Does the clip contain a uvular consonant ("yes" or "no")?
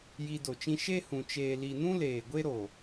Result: no